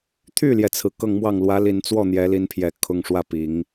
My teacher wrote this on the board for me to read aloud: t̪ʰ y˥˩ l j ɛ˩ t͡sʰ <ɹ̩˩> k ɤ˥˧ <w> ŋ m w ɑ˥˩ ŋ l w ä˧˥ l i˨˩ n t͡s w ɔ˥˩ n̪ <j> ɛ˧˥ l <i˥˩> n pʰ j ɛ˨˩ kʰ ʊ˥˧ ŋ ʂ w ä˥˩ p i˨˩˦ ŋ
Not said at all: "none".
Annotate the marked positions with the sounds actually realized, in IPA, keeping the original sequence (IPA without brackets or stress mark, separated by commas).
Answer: ɹ̩˩, none, j, i˧˥